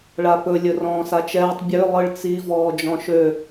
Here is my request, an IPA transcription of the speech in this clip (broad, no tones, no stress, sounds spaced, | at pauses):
ɭ a p ɵ lʲ ɵ r ɔ̃ː s a t͡ʃ ɛː tˤ bʲ ø lˠ ɯ ɭ t͡s i v ɔː d͡ʒ ɔ̃ ʃ ø